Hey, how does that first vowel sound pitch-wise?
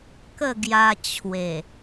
falling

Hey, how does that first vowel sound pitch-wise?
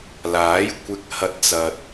rising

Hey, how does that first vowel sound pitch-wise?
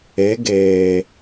rising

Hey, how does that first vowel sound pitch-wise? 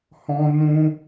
high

